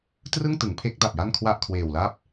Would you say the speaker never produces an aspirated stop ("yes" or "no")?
no